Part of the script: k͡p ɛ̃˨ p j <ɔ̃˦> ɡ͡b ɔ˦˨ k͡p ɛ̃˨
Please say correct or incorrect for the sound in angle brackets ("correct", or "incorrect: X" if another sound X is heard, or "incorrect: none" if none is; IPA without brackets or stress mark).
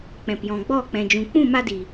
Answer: incorrect: ɔ̃˨